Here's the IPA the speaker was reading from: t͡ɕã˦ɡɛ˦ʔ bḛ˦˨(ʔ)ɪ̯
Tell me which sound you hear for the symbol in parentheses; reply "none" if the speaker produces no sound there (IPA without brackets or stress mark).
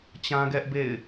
none